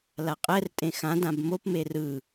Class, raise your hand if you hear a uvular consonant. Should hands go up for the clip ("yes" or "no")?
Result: yes